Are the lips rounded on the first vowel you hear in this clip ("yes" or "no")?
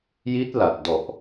no